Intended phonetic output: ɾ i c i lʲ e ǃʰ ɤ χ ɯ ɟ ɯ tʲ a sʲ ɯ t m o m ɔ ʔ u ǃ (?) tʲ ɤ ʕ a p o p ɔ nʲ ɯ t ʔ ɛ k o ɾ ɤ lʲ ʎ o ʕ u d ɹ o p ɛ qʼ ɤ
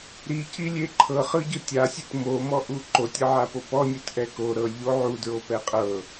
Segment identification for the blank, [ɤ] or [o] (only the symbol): o